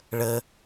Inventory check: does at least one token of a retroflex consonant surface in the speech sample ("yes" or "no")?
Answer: yes